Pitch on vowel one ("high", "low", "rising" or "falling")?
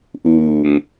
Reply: low